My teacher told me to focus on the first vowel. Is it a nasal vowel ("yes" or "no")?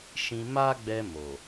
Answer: yes